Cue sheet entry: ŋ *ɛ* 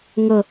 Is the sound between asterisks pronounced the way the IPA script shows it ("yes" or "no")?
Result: no